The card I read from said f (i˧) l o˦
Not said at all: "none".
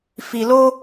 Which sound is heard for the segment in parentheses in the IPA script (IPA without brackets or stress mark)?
i˧